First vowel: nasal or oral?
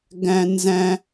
nasal